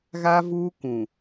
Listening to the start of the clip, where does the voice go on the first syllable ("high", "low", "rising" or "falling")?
high